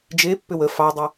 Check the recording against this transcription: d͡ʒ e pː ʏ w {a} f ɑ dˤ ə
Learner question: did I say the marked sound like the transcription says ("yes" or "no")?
no